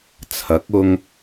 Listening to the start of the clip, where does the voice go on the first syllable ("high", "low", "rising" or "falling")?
rising